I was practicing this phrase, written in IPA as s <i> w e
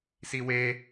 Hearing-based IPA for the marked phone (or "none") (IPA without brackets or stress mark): i